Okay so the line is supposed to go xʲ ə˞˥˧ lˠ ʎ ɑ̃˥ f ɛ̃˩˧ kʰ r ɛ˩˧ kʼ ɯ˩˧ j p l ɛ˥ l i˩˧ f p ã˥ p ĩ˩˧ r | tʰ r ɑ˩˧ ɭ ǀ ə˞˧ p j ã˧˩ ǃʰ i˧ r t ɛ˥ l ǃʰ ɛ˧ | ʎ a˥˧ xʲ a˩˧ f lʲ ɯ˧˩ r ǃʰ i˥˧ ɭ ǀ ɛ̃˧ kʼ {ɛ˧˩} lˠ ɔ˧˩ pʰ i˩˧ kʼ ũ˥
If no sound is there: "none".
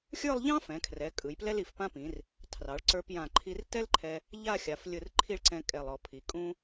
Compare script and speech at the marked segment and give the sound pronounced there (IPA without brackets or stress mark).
ɛ˧˩